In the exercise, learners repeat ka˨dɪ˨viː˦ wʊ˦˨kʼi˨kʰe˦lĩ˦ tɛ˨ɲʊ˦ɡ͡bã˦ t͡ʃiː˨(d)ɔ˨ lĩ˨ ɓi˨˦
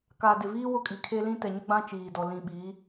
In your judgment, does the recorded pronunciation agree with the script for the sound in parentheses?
yes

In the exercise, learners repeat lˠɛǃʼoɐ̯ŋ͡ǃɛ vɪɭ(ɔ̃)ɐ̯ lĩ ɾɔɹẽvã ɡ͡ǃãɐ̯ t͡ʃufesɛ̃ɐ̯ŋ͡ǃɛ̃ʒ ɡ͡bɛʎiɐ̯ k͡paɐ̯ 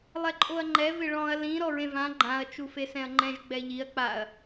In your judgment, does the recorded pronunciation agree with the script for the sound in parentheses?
yes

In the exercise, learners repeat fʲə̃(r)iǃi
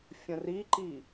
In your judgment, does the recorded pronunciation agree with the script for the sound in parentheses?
yes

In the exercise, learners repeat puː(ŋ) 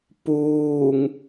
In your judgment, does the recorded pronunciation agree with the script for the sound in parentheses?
yes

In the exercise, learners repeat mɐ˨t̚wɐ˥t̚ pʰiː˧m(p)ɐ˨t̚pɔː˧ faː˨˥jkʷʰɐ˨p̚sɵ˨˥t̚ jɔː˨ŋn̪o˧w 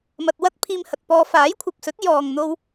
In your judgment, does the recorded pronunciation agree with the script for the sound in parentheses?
no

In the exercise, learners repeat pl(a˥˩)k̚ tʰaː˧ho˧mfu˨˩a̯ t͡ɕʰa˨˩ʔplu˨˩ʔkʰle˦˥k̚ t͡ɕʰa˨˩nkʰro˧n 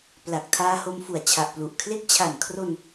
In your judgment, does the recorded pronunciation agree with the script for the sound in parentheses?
no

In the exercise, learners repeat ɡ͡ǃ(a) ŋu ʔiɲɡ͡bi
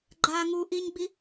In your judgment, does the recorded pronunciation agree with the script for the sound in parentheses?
yes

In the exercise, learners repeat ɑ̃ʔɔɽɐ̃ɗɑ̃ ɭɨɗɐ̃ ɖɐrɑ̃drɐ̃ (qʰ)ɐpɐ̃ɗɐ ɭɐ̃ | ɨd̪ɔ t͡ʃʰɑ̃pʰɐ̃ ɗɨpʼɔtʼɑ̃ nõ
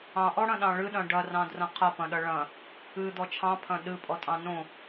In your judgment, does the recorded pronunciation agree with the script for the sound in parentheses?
yes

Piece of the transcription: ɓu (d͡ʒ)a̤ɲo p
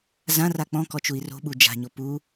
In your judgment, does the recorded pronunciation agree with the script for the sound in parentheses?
yes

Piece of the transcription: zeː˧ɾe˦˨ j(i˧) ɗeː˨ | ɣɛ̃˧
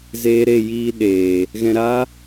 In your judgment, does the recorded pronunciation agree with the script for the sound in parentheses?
no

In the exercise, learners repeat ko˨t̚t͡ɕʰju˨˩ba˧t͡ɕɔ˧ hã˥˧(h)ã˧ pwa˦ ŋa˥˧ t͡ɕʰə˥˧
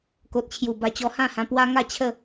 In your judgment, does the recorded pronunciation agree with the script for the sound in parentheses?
yes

